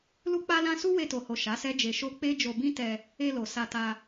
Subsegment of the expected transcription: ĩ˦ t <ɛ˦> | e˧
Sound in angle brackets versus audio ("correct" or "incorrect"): incorrect